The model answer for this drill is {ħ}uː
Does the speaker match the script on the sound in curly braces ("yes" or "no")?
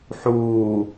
yes